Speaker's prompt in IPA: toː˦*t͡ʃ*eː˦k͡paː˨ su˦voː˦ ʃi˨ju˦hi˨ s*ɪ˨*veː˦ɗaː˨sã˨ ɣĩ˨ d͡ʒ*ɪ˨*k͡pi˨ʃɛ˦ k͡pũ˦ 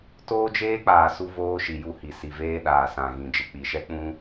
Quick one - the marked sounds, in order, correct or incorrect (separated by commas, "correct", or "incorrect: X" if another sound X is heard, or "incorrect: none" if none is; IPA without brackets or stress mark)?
incorrect: d͡ʒ, incorrect: i˨, correct